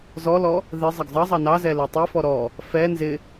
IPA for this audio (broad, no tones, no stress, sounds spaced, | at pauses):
z ɔ l ɔ | ð ɪ zˤ ʌ ɡ zˤ ʌ zˤ ɑ n ɑ z ɛ l ɛ tˤ i f ɔ ɾ ɔ | f ɛ n z ɪ